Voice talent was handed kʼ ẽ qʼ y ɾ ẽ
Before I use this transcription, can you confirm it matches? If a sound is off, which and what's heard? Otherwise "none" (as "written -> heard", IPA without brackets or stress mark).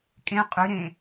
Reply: none